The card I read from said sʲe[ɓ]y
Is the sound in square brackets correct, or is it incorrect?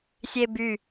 incorrect